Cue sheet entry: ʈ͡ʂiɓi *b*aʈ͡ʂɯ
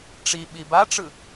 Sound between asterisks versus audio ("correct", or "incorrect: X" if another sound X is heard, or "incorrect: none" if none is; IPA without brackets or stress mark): correct